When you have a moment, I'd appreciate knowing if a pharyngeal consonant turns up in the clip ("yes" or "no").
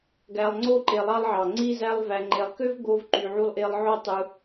yes